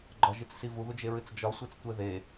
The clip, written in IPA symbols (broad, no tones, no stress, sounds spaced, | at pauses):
ɡ͡ǃ ɒ ʒ i t͡s s i v u ð u d͡ʒ e ɹ ɨ t͡s d͡ʒ ɒ sʷ e t͡s tʷ e ð e